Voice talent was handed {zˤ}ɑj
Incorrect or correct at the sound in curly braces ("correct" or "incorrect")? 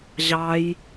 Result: incorrect